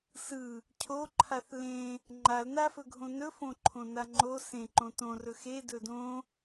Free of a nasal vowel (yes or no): no